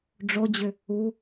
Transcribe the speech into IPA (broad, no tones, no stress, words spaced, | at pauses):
ɖ͡ʐod͡ʑʏ | u